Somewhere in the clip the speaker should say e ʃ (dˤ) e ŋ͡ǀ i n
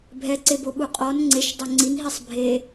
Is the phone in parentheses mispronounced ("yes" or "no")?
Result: no